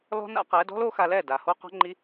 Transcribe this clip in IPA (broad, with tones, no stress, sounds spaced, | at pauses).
l ɔ̤˦ n a̰˦ q ɛ˨˦ d ɔ̤˦ l o˦ x a˧ l ɛ˦˨ d a˨ h o˦ q ɔ̤˦ ŋ͡ǃ i˦